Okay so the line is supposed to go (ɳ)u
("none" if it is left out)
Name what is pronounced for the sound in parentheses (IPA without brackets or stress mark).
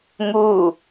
ŋ